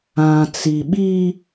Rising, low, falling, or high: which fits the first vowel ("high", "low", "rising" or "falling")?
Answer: low